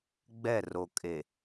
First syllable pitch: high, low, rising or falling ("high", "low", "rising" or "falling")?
falling